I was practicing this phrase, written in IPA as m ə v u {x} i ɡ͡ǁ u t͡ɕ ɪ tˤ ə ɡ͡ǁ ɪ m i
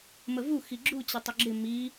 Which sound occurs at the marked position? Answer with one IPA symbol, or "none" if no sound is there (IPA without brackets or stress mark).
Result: x